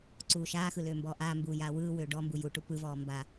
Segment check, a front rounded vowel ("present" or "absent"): present